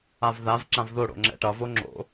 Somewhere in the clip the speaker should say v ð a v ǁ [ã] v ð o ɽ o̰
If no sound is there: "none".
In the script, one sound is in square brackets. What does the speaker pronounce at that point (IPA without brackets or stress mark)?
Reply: ã